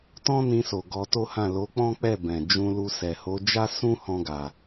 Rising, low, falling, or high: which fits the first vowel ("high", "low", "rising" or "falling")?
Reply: high